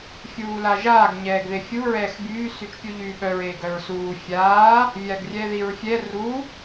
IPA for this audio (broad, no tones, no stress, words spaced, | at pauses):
fʲuːlaʒaːɡ ɲɛːɡðefʲu ɹɛːxbyː syt͡ʃpʲuʎyːɓœɹ eːɡœɹsuː fʲaː | vʲaɡrʲɛðiɹfʲɛ ru